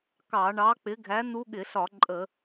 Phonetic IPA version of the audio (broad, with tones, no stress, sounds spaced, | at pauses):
k ɑ˧˩˧ ɳ ɑ˨˥ k͡p ɪ˨˥ ɡʱ æ˨˥ n u˦˥ ɠ ɪ˧˩˧ ɬ ɒ˧˩˧ ǃʼ ə˧˩˧